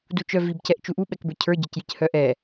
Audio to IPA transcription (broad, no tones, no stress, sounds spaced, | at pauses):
d u t͡ʃ œ v i b c ɛ ʔ t͡ʃ u ʔ u ɓ ɛ k b ə˞ cʰ ə˞ ɟ ə˞ c j i c h œ ʔ ɛ